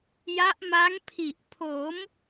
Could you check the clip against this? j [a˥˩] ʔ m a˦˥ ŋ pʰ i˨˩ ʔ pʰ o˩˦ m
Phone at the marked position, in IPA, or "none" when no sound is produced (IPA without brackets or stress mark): a˦˥